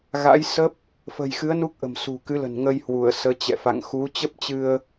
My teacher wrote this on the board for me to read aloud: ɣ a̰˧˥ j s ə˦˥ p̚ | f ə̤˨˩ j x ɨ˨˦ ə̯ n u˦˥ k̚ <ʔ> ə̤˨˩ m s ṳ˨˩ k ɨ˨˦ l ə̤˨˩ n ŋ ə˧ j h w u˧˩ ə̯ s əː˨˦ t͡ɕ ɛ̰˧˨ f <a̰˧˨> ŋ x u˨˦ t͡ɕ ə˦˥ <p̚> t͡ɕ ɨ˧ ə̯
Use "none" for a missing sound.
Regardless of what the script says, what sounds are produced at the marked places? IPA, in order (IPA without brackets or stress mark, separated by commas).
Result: ʔ, a̰˧˨, p̚